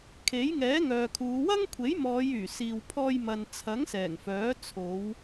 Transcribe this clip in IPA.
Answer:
kʰ e˨˥ j ŋ ɛː˨˥ ŋ œː˨ kʰ uː˨˧ w ɐ˥ ŋ kʷʰ e˨˥ j m ɔː˨˧ j yː˨˩ s iː˨ w pʰ ɔː˧ j m ɐ˨ n t͡sʰ ɐ˨˥ ŋ s ɛː˨˩ ŋ f œː˨˥ t͡sʰ o˨˧ w

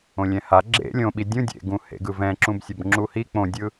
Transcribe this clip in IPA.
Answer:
õ lʲ ɛ̃ h a ɡ͡ǁ ḛ lʲ õ ɓ i dʲ ũ dʲ ḛ ɡ ũ h ḛ ɡ ɯ v ɛ̃ ǁ ũ b sʲ ʌ b ŋ͡ǁ u h i k͡p õ dʲ ɯ

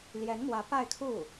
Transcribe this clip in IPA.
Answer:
l j ɛ˧˥ n m w ä˧˥ p a˥˧ ɪ̯ kʰ u˥˩

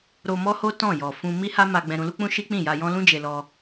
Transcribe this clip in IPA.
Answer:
ɾ o˧ m ɔ˦ h o˦ t ɔ̃˦˨ j ɔ˨ f ũ˧ m i˦ h a˦ m a˧ ɡ͡b ɛ̃˧ ɾ ũ˧ l u˦ k͡p ũ˦ ʃ i˦ k͡p ĩ˦˨ j a˧ j ɔ̃˦ l ũ˦ d͡ʒ e˧ l ɔ˧

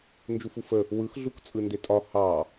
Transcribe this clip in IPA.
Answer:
n d͡ʒ u f u f ə | w ɯ x ɮ u k t͡sʼ ɯ n d e tʼ ɒ h ɑ

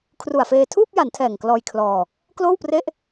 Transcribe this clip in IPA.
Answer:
kʰ r u˨˩ a̯ f eː˧ tʰ uː˥˩ p̚ j a˩˦ n tʰ ɛː˨˩ ŋ k l ɔː˧ j kʰ l ɔː˧ | k l oː˥˩ w p r e˥˩ ʔ

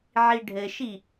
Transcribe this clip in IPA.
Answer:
ʕ i ɖʱ ɘ ʃ i

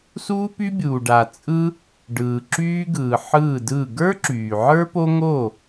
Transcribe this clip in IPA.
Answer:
s uː˥ p y˥ bʲ uː˨ ɖ a˨ t͡sʼ ɯ˥ | ɖ ɯː˨ ǁ yː˥ ɡ ɯː˨ ħ ɯː˥˨ d ɯ˥˨ ɡ ə˞˥ ǁ yː˨ ʕ ə˞˥ p o˥ ŋ o˥˨

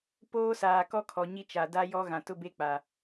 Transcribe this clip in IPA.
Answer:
p oː˦ s aː˨ k ɔ˦ kʰ ɔ˨ ɲ i˦ t͡ʃ a˨ d a˦ j ɔ˦ ɣ ã˨ t ʊ˦ b e˦ k͡p a˨

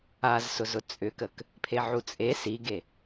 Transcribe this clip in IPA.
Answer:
a z s ʊ z ʊ t͡sʼ ʏ k ə k | pʰ e ʕ u t͡sʼ e s i ɡ e

